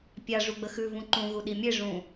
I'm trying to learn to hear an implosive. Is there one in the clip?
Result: yes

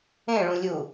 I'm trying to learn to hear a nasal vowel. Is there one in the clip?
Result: yes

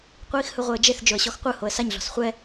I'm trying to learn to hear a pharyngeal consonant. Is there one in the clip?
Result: no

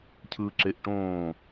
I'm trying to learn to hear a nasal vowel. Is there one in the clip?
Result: yes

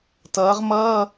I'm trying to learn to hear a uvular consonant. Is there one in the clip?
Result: yes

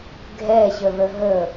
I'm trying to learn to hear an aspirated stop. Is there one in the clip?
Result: no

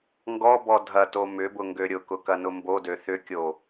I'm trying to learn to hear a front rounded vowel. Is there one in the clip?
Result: yes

